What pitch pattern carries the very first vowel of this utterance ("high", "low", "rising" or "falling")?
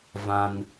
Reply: high